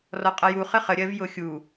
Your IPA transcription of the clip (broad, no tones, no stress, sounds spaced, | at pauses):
r ɔ qʼ ʌ j u χ ə χ ə ɾʲ ɜ v j ʊ xʲ u